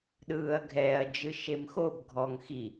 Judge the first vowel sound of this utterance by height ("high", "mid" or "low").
high